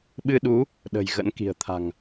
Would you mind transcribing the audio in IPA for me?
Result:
ɓ ɨ˧ ɗ u˨˦ | ɗ ə̤˨˩ j ɣ ə̰˧˥ n k i̤˨˩ ə̯ t̪ʰ a̤˨˩ ŋ

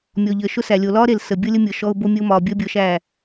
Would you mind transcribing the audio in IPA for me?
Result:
mʲ ɔ˨ ʎ əː˨ ʃ ʊ˦ s æ˨ lʲ o˨ l ɒː˦ ɾ e˨ l s ə˨ bʲ ɤ˦ lʲ ə˦ mʲ ɤ˨ ʃ ɔ˦ ʊ̯ b o˦ mʲ ə˦ ʊ̯ m ɒː˨ bʲ əː˦ bʲ ɤ˨˦ ʃ æː˦˨

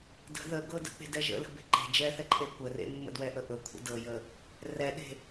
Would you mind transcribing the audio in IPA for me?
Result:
d ə̤ ð ə ɡ ɤ d ə̰ k͡p e̤ d ɛ ʒ ə̰ l ə̤ b e̤ ǃ e̤ d͡ʒ ɛ θ ɛ ǃʼ e kʷ ə r ḛ mː ə̰ d w ɛ ʔ ə ʔ ɵ kʷʰ ə̰ d ɤ j ə | r ɛ ɗ e̤

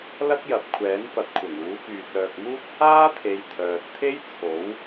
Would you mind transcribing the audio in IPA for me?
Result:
l ɐ˥ k̚ j ɐ˨ p̚ kʷʰ ɛː˨˥ n f ɐ˨˥ t̚ kʷʰ ɐ˨˩ ŋ uː˨˥ k yː˨ t̚ œː˨ k̚ m uː˥ t̚ h aː˥ t̪ʰ e˨ j t̪ʰ œː˨ t̚ t̪ʰ e˥ j t͡sʰ o˨˥ w

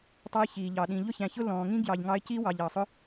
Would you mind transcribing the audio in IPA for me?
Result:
tˤ ɑ˧ j ç iː˨ ʎ ɑ˨ ɗ ĩ˨ ʎ ʊ˦ ç æ̃˨ ç ʊ˦ l ɔ̃ː˨ ŋ ĩ˦ ɡ j ɑ˧ ʎ ŋ ɑ˦ ɪ̯ c i˦ w ɑ˨ ʎ ɑ˨ sˤ ʊ˦

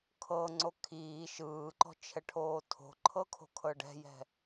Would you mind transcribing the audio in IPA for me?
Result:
kʰ ɤ ŋ͡ǀ o kʰ iː ʃ ɯː ǃ ɔ̤ t͡ʃʰ ɛ ʈʰ oː tʰ o̤ ǃʰ ɤ kʰ o̤ kʰ ɤ ɖ ɛ̤ j ɛ̤

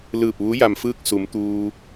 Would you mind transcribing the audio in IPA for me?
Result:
l ɯː˧˩ p̚ ʋ u˧˥ j a˩ m f ɯː˥˨ k̚ s u˩˧ m t̪ uː˧

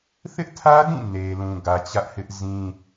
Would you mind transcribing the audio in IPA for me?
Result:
θ ɪ˦ ʔ tʰ ä˦ d ĩ˦˨ n e˨ l ũ˨ ɡ ä˨ t͡ɕ ä˦ ʔ h ɪ˦ ʔ z ĩ˦

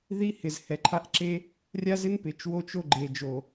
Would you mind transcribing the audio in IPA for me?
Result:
ð i˦ h ɪ˨ z h ɛ˨ ǃʰ a˦ ʔ ǁ e˦ | rʲ a˦ z ɪ˦ n p ɪ˨ t͡ʃ w o˦ t͡ʃ o˦ ɡ͡ǃ e˨ d͡ʒ o˨

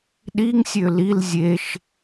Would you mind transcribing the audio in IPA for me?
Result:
ɗ i ŋ sʲ ø l i l zʲ e ʃ

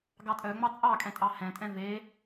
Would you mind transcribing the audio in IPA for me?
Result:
ɡ ɑ tʼ œ ŋ͡m ɑ t͡sʼ ɑ kʼ ɛ̃ tʼ ɑ h ɛ̃ tʼ ɛ̃ v e

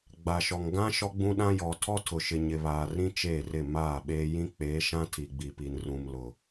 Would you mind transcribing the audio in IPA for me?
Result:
ɡ͡b a˨ ʃ ɔ˨ ŋ ɡ ã˦ ʃ ɔ˦ ɡ͡b ũ˦ ɗ ã˦ j ɔ˨ tʰ ɔ˦ tʰ ʊ˨ ʃ ɪ˨ ɲ ɪ˨ β aː˨ r ĩ˦ t͡ʃ eː˦˨ r ɪ˦˨ m aː˦˨ ɓ eː˦ j ĩ˦ k͡p eː˨˦ ʃ ã˦ tʰ i˨ ɡ͡b i˨ p i˨ n r ũ˨ m l ʊ˨

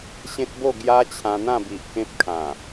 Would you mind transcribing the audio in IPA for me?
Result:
ɕ ẽ˦ t̚ b o˥˧ ɡ j a˦ t͡ɕʰ ã˧ n̪ ã˥˧ b i˨ ʔ k ẽ˦ p̚ kʰ ã˨˩

